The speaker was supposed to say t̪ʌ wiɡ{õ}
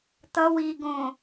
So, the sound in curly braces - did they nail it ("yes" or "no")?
yes